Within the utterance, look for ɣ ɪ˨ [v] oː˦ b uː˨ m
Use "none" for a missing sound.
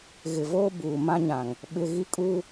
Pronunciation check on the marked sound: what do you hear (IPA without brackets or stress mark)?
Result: v